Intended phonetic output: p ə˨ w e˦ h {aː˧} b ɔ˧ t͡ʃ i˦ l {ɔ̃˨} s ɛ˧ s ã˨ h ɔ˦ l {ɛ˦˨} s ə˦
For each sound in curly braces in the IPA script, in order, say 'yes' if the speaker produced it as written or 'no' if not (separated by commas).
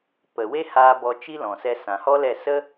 yes, yes, yes